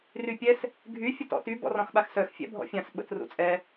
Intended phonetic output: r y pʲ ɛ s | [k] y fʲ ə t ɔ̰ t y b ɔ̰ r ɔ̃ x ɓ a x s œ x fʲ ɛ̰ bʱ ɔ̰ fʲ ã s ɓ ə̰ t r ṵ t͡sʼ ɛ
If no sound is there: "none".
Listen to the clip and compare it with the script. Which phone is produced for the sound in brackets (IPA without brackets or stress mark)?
ɡʱ